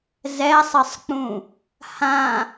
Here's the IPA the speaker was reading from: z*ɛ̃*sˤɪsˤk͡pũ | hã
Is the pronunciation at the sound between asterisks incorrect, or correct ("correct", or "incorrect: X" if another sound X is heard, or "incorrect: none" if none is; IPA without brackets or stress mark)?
incorrect: ɛ